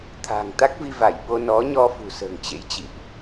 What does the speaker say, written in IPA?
t̪ʰ a̤˨˩ ŋ t̪ a˦˥ k̚ v i˧ v a˧˩ j ɓ o˧ n ɔ˨˦ ɲ ɔ˧ f ṳ˨˩ s ə̤ː˨˩ ŋ t͡ɕ ḛ˧˥ j t͡ɕ ḭ˧˨ ʔ

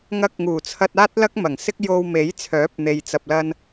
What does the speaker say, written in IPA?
ŋ ɐ˧ k̚ ŋ uː˨˩ t͡sʰ ɐ˧ t̚ aː˥ t̚ l ɐ˥ k̚ m ɐ˨˩ ŋ s ɪ˥ k̚ j o˧ w m e˨˥ j t͡sʰ œː˨˥ p̚ n̪ e˨ j t͡s ɐ˨ p̚ l ɐ˧ n

